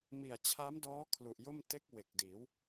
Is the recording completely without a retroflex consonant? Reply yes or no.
yes